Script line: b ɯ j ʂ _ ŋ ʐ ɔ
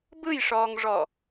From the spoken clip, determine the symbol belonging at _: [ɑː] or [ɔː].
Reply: ɔː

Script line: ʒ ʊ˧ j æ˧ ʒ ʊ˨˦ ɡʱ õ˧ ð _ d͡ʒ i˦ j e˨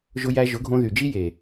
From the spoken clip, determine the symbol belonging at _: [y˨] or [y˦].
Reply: y˨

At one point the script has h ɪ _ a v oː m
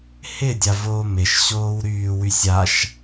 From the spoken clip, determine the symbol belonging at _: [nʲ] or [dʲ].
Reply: dʲ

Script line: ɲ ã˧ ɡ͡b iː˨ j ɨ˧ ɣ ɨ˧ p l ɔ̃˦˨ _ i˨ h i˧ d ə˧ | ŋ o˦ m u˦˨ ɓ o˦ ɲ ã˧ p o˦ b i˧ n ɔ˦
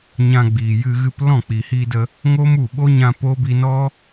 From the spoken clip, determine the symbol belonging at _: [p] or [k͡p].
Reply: k͡p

